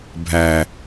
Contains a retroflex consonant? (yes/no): no